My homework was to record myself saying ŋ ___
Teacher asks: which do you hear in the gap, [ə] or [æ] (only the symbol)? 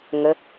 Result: ə